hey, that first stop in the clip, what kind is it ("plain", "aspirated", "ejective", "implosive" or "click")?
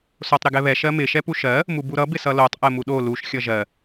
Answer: plain